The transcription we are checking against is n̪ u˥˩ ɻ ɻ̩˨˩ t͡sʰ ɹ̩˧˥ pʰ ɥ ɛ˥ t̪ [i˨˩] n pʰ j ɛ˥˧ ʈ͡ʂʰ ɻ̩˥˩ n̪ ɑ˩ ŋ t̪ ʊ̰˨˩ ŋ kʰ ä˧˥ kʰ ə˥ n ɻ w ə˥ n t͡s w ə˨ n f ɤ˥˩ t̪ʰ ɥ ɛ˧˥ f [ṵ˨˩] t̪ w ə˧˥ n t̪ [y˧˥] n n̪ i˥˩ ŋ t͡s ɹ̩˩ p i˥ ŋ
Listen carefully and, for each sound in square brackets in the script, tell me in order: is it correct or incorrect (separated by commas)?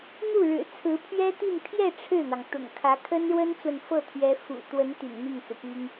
incorrect, correct, incorrect